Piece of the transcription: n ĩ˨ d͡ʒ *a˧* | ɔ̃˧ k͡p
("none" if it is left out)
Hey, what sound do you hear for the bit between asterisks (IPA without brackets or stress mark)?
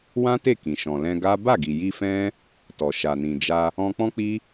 a˧